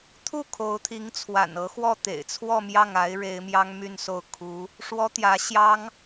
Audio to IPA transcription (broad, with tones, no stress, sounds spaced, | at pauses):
t̪ʰ u˥˩ kʰ o˧˥ ʊ̯ t̪ʰ i˧˥ ŋ t͡sʰ w a̰˨˩ n ɤ˧˥ x w ɔ˥˩ t̪ ḛ˨˩ ɪ̯ t͡sʰ w ɔ˥˧ m j ɑ˥˩ ŋ a˧˥ ɪ̯ ɻ e˧˥ ɪ̯ m j ɑ˥ ŋ m y˥˧ n s o˥˩ ʊ̯ kʰ u˧˥ | ʂ w ɔ˥ t̪ j ä˧˥ ɕ j ɑ˥ ŋ